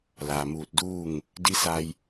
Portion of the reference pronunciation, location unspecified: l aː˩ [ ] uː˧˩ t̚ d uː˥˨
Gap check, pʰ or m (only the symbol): m